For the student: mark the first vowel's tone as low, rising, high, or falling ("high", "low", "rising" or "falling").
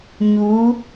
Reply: rising